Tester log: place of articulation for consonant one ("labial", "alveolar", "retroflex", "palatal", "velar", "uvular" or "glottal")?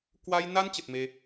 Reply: velar